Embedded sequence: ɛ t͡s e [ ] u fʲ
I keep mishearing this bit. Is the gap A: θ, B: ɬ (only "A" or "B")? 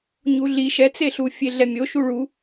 B